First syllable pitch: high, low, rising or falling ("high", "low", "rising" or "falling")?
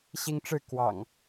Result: high